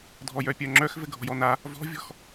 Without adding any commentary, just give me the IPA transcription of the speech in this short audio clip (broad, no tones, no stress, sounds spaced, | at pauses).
dʱ ɔ j œ pʲ œ ŋ͡ǁ œ x v ɘ ɡʱ ɔ̤ j ɔ n a | v ɔ̤ vʲ ɔ̤ x